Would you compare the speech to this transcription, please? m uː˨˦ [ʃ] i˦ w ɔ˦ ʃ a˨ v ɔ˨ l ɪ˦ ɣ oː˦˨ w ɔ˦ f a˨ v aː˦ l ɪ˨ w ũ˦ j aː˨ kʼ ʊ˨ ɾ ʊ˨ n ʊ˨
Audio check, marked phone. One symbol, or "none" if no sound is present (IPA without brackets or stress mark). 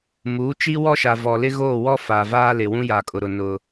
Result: t͡ʃ